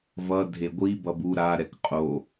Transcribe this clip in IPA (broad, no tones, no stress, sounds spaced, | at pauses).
v ʌ dʱ e ɡʷ i b ʌ b u ɾ a ɾ ɛ k qʼ o